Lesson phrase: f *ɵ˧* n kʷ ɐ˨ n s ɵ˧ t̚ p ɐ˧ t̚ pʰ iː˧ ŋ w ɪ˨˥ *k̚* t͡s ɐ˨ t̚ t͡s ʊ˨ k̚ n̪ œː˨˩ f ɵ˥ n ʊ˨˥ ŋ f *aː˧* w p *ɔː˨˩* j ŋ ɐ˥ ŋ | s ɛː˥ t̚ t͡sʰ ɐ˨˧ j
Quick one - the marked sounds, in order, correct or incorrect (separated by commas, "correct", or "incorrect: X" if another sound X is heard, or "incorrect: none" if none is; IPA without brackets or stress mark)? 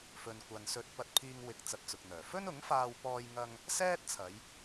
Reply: incorrect: ɵ˨, correct, correct, incorrect: ɔː˥